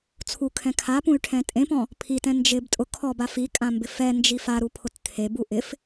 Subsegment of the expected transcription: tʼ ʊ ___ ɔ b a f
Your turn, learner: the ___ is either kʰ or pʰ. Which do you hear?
kʰ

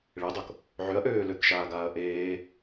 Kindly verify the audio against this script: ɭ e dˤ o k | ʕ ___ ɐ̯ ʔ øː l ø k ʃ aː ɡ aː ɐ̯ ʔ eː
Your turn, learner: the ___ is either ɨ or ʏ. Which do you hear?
ʏ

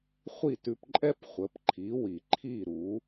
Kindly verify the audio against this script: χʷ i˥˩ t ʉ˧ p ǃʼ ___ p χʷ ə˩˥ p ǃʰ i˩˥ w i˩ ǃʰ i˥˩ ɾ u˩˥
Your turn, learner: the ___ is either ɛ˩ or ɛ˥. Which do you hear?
ɛ˥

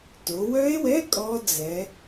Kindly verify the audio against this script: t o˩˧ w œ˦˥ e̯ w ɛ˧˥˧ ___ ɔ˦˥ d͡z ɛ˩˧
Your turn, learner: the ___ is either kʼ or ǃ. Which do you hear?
kʼ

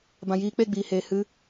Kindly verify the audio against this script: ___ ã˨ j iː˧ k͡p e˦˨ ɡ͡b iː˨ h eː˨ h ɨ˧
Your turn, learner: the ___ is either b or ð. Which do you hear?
b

